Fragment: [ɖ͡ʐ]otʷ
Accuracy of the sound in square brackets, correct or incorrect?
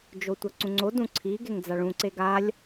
incorrect